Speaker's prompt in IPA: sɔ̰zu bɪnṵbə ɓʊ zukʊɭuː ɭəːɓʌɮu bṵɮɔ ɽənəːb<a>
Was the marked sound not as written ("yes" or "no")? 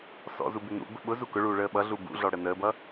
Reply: yes